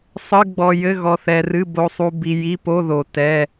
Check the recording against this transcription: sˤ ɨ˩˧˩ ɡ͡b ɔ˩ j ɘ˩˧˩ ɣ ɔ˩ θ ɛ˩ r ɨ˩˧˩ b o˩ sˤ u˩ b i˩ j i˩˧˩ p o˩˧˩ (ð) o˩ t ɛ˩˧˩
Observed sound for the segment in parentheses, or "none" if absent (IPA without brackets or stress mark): ð